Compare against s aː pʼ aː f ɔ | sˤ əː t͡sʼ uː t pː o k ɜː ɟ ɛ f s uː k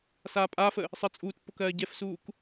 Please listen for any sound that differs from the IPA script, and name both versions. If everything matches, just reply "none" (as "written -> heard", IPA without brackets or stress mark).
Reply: ɔ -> ə